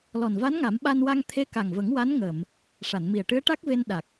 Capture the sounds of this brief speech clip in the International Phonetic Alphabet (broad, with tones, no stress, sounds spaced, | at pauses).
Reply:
l ɔ˨˩ n v a˧˥ n ŋ a˨˩˦ m ɓ a˧ n w a˧ ŋ t̪ʰ e˧˥ k a˨˩ ŋ v ə˨˩˦ ŋ w a˧˥ n ŋ əː˨˩˨ m | ʂ a˨˩˨ n m i˨˩ ə̯ ʈ ɨ˧˥ ə̯ ʈ a˦˥ k̚ v e˧ n ɗ a˨˩ k̚